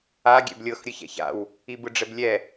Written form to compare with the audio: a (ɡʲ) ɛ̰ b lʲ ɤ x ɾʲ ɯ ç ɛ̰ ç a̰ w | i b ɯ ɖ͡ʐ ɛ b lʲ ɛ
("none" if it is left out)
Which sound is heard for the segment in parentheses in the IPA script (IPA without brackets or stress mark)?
ɡʲ